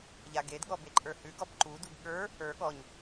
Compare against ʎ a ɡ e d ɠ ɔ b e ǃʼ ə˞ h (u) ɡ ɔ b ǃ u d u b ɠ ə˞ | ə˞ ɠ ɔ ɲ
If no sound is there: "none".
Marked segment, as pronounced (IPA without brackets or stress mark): ʉ